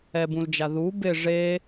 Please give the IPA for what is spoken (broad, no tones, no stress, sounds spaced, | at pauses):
ɛ b ũ l d͡ʒ a ð u b ɪ ʐ e